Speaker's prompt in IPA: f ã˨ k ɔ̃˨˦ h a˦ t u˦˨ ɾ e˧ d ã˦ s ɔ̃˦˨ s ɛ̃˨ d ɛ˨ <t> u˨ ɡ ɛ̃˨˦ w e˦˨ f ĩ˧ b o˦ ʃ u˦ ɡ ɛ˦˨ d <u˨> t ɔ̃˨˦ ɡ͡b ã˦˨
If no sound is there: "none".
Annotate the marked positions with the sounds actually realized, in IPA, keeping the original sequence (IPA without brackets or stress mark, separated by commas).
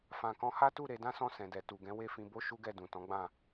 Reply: t, ũ˨